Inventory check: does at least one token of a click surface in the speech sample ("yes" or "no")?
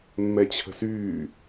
no